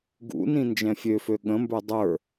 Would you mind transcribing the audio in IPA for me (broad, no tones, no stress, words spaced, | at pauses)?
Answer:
ɡṵnĩ nd͡ʒɛ̃fʲøfø ɠə̃mbə˞ dˤə˞